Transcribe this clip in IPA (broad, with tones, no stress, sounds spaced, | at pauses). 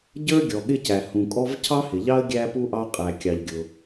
ɟ ə˞˥ ɡʲ ɔ˩ ɠ ɪ˥ c æ˩ h ũ˩ kʼ ɔ˥ v cʰ ɑ˥ h ɪ˩ ʎ ɑ˥ ə̯ ɡʲ æ˥ p u˥ ʔ ɑ˥ qʼ æ˩ kʲ ɑ˩ ʎ ɡʲ ʊ˩